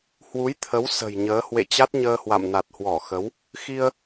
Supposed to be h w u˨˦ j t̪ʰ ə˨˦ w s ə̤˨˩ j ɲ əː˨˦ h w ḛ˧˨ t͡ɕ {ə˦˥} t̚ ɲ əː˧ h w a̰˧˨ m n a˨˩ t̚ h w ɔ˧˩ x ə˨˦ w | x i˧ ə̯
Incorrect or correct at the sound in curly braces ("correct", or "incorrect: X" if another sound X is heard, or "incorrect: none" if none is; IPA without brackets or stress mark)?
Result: incorrect: a˦˥